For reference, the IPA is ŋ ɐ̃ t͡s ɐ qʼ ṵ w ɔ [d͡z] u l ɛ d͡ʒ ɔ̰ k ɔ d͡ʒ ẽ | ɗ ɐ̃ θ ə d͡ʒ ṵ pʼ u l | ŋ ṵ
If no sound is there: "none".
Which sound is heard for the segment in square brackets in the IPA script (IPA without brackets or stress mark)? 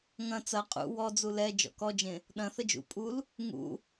d͡z